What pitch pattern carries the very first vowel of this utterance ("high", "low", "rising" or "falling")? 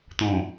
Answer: low